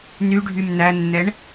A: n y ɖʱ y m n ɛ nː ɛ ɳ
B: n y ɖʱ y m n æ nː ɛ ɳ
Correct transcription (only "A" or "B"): B